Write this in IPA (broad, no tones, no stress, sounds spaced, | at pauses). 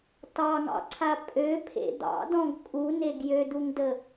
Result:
t ɑ ŋ ɑ̰ ǀʰ a pʼ ø pʰ ḛ d̪ ɑ̰ d ɔ̃ ɡ kʼ u n e ɡ j ø d u ŋ d ə